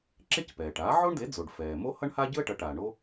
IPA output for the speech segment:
ǁ e˥ c p ɛː˩ ʈ aː˩˥ ʕ o˥ ɳ d e˩˥ d͡z o˩ ɖ f ɛː˩ m o˥ h ʌ˥ ɳ h a˥ ɟ ɯ˥ ə̯ ʈ ʌ˩˥ ʈ aː˩ ɳ o˥

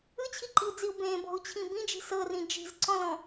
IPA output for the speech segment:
ɯ t͡ɕʰ i ǃ i u̯ d͡z i u̯ b ẽ b ɔ̤ u̯ t͡ɕʰ ĩ b ĩ d͡ʒ i̤ s ɤ r ĩ d͡ʒ i̤ z ǀ ɔ̃ l ɔ̃

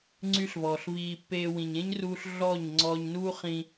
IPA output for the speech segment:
ŋ͡ǀ y˦ ɬ v ɔː˨ ɬ v iː˧ pː eː˧ w ĩ˨ ɲ ẽ˦ ɲ r uː˧ ɬ ɮ ɔ˦˨ ɲ ŋ͡ǀ ɔː˧ ɲ n uː˦ χ ĩ˧

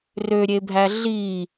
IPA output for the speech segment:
r ø ɾʲ e bʱ æ ɮ i

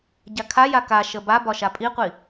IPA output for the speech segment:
ɟ a kʰ a j a k a ʃ ə b a b ɒ ʃ a pʼ i qʷ i

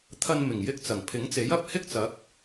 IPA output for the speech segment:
t̪ʰ ɐ˧ n m ɪ˨˩ ŋ j ɪ˧ k̚ t͡s ɐ˨˩ ŋ pʰ ɪ˨˥ ŋ t͡s e˨˥ j ɐ˧ p̚ h ɪ˥ k̚ t͡s ɐ˨˥ k̚

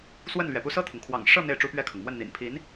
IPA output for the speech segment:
s w ə˥˩ n l ɥ ɛ˩ p u˥˧ s ɤ˥˩ t̪ʰ ʊ˩ ŋ kʰ w ɑ̰˨˩ ŋ ʂ ɤ˥˧ n̪ e˥˩ ɪ̯ ʈ͡ʂ u˥ p ɥ ɛ˥˩ kʰ ɤ˩ ŋ m w ə˥˩ n n̪ ḭ˨˩ n pʰ i˧˥ n

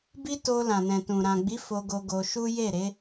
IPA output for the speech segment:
b i˦ t o˧ l ã˨ n ɛ̃˨ t ũ˨ ɾ ã˨ ɡ͡b i˨˦ f o˧ ɡ o˧ ɡ o˧ ʃ u˦ j e˦˨ ɾ e˨˦

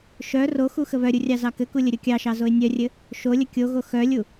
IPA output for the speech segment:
ʃ œ r o x u x ə β œ ɾʲ u rʲ ɑ z ɑ k ɘ k u lʲ ə ɾʲ o kʲ ɑ ʃ ɑ z o ɪ̯ nʲ œ rʲ ɘ | ʃ o lʲ ə kʲ o ɣ o x œ lʲ u

